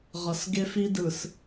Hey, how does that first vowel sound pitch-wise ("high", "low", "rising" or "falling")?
low